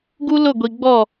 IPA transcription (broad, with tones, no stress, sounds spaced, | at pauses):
ɡ u˦ l ʊ˦˨ ɡʷ i˨ ɡ͡b ɔ˦˨